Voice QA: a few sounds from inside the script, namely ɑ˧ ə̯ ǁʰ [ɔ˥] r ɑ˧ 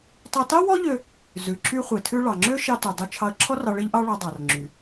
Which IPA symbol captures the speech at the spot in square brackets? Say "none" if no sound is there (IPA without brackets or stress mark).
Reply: ɔ˥